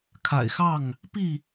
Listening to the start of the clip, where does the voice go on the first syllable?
low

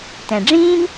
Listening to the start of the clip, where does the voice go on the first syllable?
low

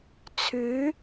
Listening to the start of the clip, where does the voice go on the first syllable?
rising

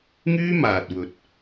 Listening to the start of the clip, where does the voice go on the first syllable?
high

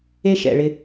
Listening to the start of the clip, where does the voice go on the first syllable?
high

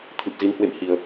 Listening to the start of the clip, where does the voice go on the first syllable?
low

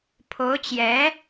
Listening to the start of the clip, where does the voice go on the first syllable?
rising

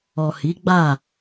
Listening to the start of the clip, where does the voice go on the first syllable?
low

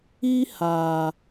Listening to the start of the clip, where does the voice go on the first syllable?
high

